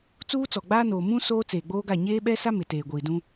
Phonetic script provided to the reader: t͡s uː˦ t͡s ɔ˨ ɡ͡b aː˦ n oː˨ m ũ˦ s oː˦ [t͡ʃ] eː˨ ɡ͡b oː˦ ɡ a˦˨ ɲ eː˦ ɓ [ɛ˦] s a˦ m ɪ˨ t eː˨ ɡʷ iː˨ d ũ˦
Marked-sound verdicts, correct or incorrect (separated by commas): incorrect, correct